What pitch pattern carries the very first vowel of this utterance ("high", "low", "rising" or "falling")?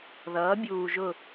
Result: rising